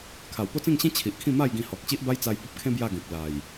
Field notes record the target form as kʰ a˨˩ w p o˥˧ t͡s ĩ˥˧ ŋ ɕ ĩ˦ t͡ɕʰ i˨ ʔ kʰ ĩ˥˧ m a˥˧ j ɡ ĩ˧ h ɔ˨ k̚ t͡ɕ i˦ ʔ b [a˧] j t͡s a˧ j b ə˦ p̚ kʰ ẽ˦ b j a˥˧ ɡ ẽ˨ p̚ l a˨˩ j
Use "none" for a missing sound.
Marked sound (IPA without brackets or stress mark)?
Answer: a˦